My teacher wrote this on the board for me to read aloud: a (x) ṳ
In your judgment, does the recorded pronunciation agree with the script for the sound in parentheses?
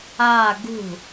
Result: no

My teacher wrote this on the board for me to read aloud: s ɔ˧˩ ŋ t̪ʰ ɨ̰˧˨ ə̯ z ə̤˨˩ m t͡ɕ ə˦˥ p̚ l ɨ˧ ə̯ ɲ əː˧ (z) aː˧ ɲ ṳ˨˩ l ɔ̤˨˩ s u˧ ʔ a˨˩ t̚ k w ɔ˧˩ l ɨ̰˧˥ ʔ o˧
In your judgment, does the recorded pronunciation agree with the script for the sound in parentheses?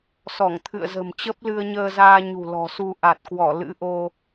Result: yes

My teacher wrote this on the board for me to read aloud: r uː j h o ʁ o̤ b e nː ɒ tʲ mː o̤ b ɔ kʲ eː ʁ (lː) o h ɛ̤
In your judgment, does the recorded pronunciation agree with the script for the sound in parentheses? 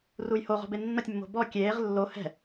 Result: yes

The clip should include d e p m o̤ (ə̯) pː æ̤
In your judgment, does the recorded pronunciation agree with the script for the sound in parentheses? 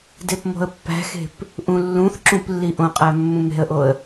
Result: yes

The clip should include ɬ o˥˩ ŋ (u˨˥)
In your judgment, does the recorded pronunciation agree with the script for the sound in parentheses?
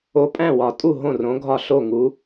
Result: yes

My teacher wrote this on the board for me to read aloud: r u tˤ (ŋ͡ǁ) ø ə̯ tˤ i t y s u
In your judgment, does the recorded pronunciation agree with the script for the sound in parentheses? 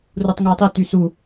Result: no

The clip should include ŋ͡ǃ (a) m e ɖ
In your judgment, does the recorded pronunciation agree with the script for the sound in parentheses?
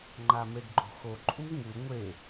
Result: yes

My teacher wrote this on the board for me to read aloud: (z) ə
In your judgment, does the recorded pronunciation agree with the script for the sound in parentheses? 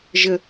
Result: no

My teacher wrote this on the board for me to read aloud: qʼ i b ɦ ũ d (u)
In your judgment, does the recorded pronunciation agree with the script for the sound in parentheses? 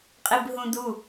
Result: yes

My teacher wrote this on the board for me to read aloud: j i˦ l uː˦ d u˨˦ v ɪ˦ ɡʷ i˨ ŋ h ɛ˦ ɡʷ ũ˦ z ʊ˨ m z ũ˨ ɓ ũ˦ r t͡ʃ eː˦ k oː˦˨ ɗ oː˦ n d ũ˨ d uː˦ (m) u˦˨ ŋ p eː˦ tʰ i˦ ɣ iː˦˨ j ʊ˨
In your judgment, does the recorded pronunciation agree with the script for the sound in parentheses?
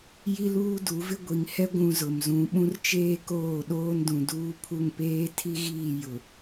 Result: no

